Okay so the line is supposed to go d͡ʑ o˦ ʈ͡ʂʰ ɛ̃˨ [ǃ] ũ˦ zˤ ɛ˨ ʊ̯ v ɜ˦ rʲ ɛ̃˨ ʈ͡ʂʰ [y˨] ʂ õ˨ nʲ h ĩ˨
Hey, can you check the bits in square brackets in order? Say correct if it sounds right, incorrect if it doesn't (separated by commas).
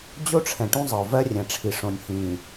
incorrect, incorrect